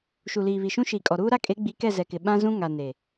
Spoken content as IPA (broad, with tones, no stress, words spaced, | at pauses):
ʃu˨liː˨βi˨ʃũ˦ ʃi˨kʼɔ˨ɾuː˦ ɾa˦kʼe˨˦ɡ͡bi˨˦ kɛ˦˨zɛ˨kɪ˨ ɓã˦zũ˦ŋa˨ ne˨